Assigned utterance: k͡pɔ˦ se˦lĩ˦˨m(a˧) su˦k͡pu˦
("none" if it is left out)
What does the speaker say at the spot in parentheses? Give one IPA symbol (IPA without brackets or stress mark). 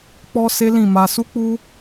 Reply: a˧